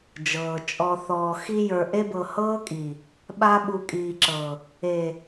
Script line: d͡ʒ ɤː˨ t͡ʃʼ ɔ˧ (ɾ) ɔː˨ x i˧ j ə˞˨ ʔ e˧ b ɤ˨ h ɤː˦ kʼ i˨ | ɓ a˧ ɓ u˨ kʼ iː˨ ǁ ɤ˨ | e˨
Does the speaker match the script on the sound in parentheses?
no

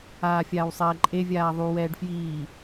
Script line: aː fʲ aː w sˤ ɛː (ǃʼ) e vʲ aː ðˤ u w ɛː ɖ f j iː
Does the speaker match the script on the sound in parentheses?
yes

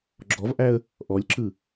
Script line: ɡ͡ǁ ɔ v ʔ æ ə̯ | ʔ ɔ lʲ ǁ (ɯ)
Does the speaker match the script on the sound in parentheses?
yes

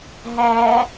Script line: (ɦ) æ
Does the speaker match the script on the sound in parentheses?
yes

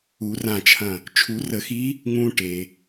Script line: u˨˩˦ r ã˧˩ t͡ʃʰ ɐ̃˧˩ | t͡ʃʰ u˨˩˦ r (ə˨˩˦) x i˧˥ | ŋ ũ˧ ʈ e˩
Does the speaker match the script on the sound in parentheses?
yes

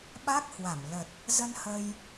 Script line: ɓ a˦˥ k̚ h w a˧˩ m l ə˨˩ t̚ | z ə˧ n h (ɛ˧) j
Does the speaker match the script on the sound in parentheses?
no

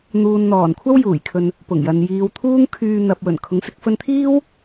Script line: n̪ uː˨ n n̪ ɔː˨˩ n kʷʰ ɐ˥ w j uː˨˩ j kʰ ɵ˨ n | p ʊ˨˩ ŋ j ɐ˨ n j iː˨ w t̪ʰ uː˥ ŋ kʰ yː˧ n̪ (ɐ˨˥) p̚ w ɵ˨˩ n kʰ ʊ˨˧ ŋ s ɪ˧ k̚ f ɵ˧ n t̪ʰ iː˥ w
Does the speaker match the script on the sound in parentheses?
no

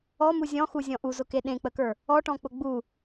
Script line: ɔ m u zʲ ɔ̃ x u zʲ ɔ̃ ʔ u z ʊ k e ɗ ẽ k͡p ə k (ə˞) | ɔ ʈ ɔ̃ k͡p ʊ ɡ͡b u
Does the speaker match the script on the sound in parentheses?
yes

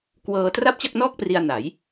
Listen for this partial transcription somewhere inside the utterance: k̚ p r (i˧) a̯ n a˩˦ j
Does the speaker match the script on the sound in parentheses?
yes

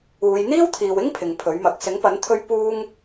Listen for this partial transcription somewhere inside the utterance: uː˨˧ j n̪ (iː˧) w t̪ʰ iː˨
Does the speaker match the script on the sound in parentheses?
no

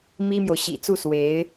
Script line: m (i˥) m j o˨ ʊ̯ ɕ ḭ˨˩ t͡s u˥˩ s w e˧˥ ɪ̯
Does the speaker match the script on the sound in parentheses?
yes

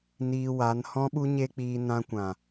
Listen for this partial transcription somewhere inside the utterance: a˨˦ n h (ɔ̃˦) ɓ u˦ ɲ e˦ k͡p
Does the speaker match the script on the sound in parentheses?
yes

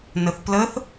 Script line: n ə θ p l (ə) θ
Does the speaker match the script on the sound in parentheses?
yes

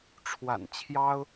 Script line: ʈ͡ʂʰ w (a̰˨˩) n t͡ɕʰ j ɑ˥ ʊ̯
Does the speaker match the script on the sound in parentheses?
yes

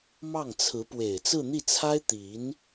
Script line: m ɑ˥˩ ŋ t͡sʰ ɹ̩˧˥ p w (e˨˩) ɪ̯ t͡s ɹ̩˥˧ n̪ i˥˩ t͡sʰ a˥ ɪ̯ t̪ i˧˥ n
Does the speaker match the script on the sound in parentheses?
yes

